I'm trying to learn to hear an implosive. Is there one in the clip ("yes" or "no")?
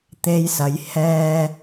no